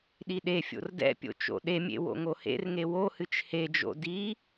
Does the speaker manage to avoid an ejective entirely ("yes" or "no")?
yes